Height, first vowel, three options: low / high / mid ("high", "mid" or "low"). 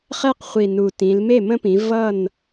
mid